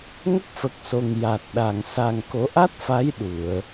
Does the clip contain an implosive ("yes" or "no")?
yes